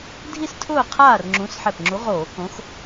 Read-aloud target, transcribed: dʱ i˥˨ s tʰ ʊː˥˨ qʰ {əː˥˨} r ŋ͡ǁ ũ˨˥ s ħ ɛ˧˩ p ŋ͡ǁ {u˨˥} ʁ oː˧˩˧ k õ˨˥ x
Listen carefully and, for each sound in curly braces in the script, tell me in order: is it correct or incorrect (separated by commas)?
incorrect, correct